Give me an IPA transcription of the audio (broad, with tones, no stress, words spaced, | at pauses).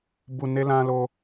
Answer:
bu˧ ne˦lã˦lo˦